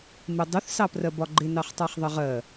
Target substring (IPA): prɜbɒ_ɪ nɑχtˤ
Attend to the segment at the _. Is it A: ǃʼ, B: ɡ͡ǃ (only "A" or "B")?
B